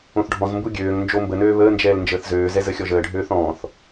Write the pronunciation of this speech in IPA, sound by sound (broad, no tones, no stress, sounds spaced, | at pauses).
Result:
õ θ ɖʱ ɔ̃ z m b u ɡʲ øː ŋ n d͡ʒ o m b ə n øː β əː n d͡ʒ ɛː l n d͡ʒ əː θ z øː z ɛ z ə xʲ ɔ ʒ əː ɖʱ øː θ ɔ̃ː θ